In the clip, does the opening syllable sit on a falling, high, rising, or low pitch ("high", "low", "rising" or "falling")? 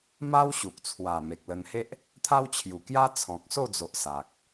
high